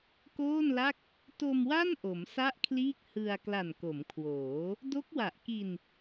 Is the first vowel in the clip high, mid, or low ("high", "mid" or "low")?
mid